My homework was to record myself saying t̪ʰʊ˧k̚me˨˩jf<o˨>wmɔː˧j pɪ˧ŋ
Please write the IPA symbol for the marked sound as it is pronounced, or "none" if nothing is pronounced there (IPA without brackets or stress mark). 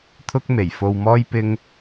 o˨